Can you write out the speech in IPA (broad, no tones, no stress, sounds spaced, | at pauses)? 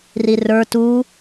r i r ə˞ t u